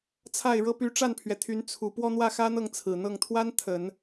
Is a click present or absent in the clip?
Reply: absent